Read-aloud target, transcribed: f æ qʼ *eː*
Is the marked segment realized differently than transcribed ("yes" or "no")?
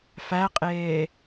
no